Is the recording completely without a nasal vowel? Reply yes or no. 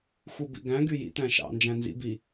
no